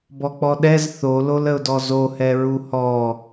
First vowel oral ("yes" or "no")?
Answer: yes